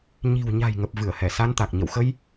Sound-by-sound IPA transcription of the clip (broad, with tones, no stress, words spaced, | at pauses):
ɲi̤˨˩w ɲa̤˨˩jŋə˨˩p̚ vɨ˧˩ə̯hɛ˧˩sa˧nt̪a˨˩k̚ ɲə̰˧˨wxə˧j